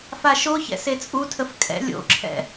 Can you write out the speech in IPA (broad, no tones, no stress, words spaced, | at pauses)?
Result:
faʃoçɛ̰ set͡sʼutʰəf kʼɛ̰ lʲo̰ǁʰɛ̰